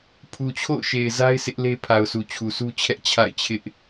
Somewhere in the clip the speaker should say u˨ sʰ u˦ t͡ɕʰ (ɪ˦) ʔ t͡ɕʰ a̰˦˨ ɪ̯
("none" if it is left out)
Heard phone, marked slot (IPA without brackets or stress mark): ɛ˦